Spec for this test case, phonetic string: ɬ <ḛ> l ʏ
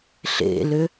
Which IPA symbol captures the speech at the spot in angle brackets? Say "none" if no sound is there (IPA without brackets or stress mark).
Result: ḛ